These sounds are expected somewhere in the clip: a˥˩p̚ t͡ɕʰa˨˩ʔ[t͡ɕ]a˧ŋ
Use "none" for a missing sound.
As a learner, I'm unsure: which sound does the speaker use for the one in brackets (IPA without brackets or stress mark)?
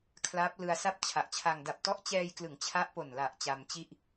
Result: t͡ɕʰ